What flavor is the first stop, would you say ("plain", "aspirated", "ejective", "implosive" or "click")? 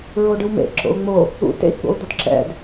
plain